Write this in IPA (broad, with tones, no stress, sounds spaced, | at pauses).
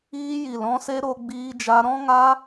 iː˧ j i˨ l ɔ̃˧ s e˧ ɾ o˧ ɡ͡b iː˧ d͡ʒ a˧ ɾ ɔ̃˦ ŋ a˦